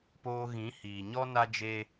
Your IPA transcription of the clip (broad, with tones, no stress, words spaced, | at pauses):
poː˧ɣĩ˨˦ hiː˨ɲɔ˦ na˦d͡ʒe˦